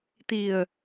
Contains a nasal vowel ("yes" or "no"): no